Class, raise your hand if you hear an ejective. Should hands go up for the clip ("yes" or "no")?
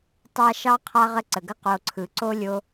no